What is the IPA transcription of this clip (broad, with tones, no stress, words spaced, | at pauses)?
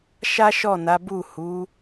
ʃa˦ʃɔ˦˨na˨˦ bu˦˨hu˨˦